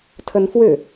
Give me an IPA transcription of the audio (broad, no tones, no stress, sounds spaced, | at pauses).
tʰ ə n f w ʏ